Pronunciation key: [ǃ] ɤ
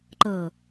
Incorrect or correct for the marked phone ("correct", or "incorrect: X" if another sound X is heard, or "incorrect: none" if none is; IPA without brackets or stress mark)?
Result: correct